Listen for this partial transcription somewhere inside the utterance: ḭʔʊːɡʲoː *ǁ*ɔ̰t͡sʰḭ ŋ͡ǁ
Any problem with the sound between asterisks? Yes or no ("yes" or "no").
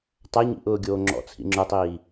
yes